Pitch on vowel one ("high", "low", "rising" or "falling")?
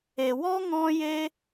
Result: low